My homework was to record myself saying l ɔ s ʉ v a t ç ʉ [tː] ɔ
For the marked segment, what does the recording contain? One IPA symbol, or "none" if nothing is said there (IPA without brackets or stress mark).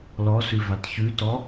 t